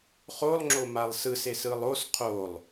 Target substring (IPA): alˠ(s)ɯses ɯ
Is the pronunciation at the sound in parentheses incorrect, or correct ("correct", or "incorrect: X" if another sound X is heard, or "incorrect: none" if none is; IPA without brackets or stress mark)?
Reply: correct